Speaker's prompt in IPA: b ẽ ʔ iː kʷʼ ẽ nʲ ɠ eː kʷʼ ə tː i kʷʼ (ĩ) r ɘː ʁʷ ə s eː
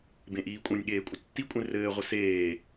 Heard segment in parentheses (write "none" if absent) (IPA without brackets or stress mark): ẽ